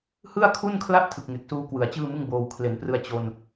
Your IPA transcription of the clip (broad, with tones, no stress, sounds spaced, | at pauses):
h ɯ˥˩ a̯ kʰ u˥˩ n kʰ l a˥˩ ʔ tʰ ɯ˨˩ k̚ ŋ e˨˩ k̚ s uː˧ k w ɯ˩˦ a̯ t͡ɕ ɯː˥˩ m ɯ˥˩ ŋ b oː˧ w kʰ l e˩˦ n p r ɯ˧ a̯ t͡ɕ o˧ n